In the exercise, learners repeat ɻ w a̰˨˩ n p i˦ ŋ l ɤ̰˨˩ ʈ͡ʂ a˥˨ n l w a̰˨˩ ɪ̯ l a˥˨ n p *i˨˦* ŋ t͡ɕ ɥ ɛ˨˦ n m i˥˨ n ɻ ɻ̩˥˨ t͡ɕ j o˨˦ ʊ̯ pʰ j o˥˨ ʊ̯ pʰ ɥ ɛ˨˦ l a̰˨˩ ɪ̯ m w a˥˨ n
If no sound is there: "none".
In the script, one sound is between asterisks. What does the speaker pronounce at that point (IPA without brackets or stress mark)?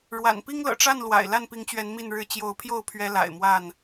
i˨˦